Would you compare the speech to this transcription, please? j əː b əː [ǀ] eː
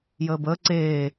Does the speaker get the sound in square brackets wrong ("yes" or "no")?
no